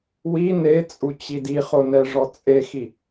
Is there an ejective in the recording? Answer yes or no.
yes